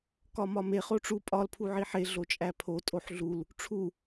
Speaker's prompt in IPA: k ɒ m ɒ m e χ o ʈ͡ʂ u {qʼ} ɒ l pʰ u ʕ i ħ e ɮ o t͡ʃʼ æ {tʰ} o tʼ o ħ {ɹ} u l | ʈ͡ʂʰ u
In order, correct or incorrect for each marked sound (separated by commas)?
incorrect, incorrect, incorrect